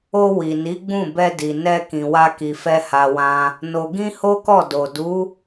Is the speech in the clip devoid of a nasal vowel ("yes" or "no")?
no